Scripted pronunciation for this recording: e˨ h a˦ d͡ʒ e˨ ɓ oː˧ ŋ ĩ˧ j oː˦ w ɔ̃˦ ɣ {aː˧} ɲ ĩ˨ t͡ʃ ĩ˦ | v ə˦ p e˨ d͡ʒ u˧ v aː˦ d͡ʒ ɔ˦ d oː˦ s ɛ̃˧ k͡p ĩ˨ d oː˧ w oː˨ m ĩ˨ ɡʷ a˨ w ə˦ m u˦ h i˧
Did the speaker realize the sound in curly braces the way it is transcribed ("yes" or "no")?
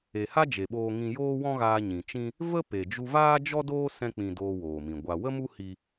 yes